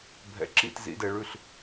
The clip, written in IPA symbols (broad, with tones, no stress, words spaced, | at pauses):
bʱɛ̰˩˥ǁḭ˥˩t zḭ˩˥dɛ˧ɭʉ˥˩ɬ